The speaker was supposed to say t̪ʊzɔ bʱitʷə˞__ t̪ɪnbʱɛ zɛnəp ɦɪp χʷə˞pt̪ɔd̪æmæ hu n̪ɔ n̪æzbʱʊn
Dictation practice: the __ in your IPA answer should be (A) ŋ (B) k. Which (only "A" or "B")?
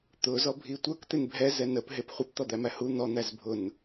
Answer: B